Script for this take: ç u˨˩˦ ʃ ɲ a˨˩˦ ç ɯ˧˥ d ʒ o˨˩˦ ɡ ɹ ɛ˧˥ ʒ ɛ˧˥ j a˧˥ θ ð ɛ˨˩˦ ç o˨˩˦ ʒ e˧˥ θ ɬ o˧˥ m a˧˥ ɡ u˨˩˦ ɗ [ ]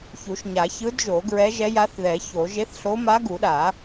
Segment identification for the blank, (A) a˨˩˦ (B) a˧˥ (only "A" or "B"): A